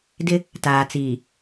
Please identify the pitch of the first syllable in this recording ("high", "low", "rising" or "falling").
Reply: high